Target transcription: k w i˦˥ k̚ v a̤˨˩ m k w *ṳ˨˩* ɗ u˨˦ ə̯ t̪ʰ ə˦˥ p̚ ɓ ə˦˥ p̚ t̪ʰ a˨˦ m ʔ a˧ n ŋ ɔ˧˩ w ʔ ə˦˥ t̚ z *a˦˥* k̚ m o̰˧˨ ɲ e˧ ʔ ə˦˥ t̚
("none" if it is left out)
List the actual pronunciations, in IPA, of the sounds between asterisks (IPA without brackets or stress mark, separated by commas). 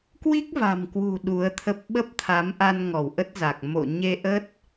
ṳ˨˩, a˨˩